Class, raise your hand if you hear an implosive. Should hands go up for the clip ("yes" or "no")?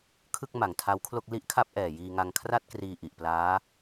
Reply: no